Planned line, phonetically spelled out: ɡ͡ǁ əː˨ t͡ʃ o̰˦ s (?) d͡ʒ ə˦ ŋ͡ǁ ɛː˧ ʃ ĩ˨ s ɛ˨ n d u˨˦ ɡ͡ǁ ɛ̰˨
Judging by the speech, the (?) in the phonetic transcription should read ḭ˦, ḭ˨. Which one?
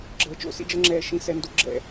ḭ˦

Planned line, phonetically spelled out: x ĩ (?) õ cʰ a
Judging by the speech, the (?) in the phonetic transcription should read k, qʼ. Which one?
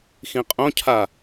qʼ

